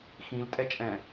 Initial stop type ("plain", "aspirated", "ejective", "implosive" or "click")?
ejective